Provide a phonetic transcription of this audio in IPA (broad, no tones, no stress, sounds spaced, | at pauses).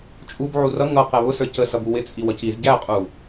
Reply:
t͡ʃʼ u b ʕ u r ʌ ŋ ʌ q ɛ β ʊ s ə˞ c ə s ʌ b u w ɪ t͡sʼ i w ʌ c i z ɟ æ qʼ u